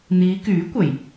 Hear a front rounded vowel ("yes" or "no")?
yes